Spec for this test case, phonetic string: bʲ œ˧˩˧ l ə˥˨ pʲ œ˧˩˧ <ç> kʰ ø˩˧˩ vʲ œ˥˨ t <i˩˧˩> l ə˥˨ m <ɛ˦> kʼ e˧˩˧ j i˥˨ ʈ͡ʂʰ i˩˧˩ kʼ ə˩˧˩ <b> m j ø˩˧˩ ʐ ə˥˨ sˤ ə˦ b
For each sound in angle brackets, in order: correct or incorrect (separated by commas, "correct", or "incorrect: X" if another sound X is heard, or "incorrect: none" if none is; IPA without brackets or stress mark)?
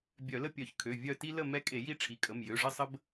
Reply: correct, incorrect: i˦, correct, incorrect: none